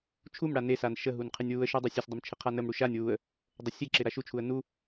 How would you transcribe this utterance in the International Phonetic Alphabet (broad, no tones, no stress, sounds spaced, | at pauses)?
t͡ʃʰ u m ɽ a n e s a n ʃ ə ɦ u n qʰ e nʲ w u ə̯ ʃ u dˤ e sʲ ə sʲ dˤ ə m t͡ʃʰ ɪ qʰ a n ə m ɽ u ʃ a nʲ w u ə̯ | dˤ ə sʲ e ǁ ɪ ɾ a ʃ u t͡ʃʰ u ə̯ n u